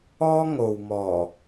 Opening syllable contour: high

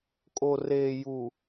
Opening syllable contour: low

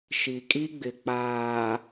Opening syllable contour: low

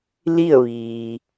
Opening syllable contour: falling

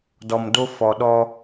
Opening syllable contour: low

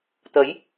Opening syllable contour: rising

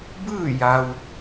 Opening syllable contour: falling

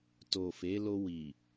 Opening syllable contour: low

